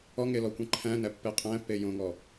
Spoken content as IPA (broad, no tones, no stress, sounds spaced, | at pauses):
ɔ ŋ e l ɔ kʷ ẽ ǃʰ æ̃ n æ pː e qʼ æ̃ pː e j õ ŋ ɔ